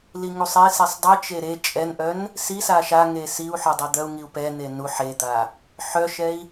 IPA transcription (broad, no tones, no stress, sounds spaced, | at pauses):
l i ŋ u sˤ e s i sˤ dˤ i t͡ʃ e ɾ e t͡ʃʼ ɛ n ʔ œ n | s i s a ʃ a ŋ e s i u̯ ħ œ dˤ e d̪ œ u̯ ŋ i u̯ p ɛ n̪ e n u ħ e d̪ a | ħ œ ʃ ɛ i̯